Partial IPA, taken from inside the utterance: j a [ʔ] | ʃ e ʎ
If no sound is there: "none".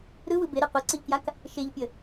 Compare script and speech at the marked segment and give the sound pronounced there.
k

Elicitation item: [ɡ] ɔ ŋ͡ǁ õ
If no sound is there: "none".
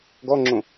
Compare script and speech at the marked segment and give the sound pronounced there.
ɡ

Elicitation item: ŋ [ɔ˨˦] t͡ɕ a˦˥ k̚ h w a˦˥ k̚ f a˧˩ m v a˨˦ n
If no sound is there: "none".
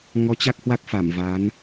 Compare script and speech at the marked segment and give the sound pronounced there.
ɔ˨˦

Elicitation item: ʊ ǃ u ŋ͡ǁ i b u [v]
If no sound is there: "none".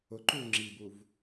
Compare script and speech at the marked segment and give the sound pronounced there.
v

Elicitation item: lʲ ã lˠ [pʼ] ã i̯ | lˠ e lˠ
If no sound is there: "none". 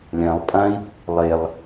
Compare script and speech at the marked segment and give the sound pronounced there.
pʼ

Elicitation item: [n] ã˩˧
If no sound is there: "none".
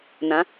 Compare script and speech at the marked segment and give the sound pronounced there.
n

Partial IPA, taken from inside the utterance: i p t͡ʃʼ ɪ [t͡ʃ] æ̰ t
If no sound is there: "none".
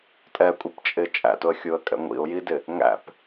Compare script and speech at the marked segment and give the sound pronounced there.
t͡ʃʼ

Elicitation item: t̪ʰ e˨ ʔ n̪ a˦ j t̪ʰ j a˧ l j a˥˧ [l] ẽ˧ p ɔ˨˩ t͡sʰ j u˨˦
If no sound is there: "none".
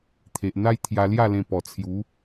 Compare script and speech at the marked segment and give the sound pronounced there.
l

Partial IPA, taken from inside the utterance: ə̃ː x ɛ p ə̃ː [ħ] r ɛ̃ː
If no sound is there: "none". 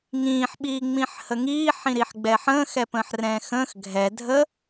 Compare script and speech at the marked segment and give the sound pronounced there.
ħ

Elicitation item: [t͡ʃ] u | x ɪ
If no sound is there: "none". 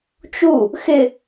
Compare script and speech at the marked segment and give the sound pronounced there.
t͡ʃ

